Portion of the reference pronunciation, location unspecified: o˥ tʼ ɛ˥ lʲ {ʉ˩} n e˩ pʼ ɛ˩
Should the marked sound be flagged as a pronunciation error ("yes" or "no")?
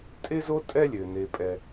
yes